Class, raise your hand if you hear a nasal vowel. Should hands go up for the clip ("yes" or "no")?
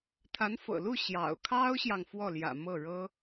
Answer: no